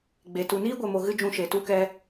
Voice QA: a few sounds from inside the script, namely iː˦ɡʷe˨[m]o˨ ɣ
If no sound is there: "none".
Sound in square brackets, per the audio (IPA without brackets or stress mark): m